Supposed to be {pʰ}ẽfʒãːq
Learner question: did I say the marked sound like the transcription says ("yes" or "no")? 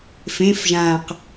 no